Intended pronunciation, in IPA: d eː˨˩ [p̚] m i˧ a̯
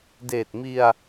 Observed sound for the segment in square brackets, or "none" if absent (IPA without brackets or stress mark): t̚